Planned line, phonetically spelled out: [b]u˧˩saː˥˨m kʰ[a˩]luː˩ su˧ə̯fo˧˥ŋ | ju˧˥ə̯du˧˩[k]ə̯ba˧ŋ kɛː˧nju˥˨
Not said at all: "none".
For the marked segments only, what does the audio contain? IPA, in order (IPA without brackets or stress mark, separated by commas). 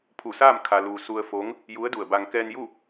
pʰ, a˩, none